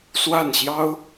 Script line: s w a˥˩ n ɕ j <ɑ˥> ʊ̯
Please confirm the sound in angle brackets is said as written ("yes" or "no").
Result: yes